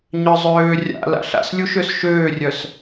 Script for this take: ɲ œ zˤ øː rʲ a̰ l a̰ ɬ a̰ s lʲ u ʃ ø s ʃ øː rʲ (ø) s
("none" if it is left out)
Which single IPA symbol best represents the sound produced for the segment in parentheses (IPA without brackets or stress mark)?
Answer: œ